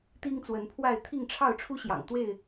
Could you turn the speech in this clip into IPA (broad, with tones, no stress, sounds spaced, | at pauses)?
t̪ i˦ ŋ t͡s w ə˨˦ n pʰ w a˥˨ ɪ̯ t̪ʰ i˥˨ ŋ ʈ͡ʂʰ ɑ˥˨ ʊ̯ ʈ͡ʂʰ u˦ ɕ j ɑ̰˨˩ ŋ t̪ w e˥˨ ɪ̯